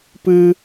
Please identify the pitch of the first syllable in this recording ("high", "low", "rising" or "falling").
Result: high